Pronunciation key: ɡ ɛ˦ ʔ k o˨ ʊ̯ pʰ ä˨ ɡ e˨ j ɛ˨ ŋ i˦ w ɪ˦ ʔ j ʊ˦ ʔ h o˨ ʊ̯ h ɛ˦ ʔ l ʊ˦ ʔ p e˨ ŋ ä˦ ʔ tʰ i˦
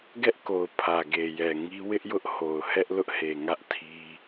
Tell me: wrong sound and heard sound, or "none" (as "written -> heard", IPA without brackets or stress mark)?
p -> h